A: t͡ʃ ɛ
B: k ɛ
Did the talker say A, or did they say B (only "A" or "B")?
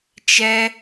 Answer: A